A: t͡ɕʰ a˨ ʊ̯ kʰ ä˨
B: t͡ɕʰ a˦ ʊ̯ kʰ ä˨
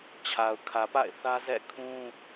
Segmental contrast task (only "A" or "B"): A